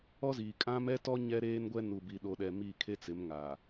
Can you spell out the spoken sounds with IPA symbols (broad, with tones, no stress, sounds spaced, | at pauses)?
ɔ˦ z iː˨ kʼ ã˦ m ɛ˦ t ɔ˦ ɲ ɛ˦ ɾ eː˦ n ɡʷ ɛ˦ n u˨ b i˨ ɗ o˨ ɗ ɛ˨ m i˦˨ kʰ e˦ t͡s ɪ˨˦ m ŋ a˨